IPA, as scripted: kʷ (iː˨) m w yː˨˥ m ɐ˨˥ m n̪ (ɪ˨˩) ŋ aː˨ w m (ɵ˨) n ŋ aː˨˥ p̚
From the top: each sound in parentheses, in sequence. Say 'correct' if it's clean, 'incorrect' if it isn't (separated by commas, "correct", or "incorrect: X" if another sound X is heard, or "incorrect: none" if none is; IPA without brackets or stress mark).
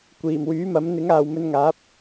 incorrect: iː˨˩, incorrect: ɪ˨˥, incorrect: ɵ˧